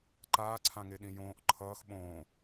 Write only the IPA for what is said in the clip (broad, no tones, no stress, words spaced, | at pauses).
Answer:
ǃaːǀʰãŋeɗĩ jõːʔ ǃʰʌːx ɓõː